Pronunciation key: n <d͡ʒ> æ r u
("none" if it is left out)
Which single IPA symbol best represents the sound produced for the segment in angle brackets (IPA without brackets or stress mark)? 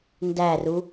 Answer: d